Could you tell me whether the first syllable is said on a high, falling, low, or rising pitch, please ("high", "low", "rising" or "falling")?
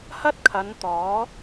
high